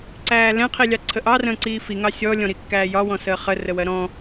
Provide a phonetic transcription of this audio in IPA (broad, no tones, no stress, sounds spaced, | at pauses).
ǀ æː l ɛ̃ qʰ i lʲ ɑ ǀʰ ə ʔ ɑ r ə̃ː ǀ iː f i ŋ ɑ sʲ ɔ lʲ ɔ̃ ɾ i kː æː j ɒ w ɔ̃ s əː χ ə r ə w ɜ ɾ ɔ̃